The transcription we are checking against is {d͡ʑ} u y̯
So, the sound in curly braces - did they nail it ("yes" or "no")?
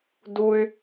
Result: no